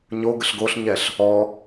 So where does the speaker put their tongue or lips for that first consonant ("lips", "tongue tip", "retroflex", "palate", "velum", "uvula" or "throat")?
palate